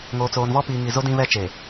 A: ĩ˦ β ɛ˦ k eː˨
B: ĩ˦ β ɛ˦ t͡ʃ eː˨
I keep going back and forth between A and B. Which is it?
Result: B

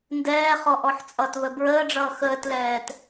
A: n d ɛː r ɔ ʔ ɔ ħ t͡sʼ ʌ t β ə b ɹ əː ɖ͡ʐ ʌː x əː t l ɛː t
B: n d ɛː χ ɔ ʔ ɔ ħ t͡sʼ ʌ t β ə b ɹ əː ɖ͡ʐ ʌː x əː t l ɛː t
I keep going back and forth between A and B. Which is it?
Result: B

